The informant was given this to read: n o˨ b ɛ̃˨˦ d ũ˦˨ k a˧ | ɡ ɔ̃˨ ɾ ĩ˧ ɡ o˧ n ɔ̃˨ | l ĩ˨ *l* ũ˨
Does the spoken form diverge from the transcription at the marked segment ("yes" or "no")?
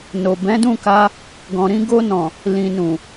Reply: yes